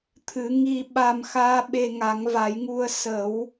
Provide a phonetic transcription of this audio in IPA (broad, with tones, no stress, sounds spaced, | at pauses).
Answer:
t̪ʰ ɨ˨˩˦ ŋ i˧ ɓ a˧ m x aː˧˥ ɓ e˧ ŋ a˨˩˦ ŋ v a˨˩˦ j ŋ u˧ ə̯ s ə˨˩˦ w